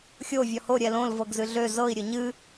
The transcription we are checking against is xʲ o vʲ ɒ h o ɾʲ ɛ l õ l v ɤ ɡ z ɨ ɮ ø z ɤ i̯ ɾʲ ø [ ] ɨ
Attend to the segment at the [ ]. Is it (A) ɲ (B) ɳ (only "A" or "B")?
A